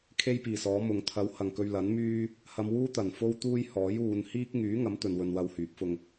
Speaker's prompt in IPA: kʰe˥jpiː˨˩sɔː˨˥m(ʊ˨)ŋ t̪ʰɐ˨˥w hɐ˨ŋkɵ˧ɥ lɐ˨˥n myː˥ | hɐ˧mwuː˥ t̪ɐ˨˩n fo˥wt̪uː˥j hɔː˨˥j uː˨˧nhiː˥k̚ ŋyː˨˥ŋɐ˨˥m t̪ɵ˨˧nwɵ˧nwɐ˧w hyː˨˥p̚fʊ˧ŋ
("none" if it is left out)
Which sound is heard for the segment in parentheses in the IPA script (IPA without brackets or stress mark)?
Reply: ʊ˨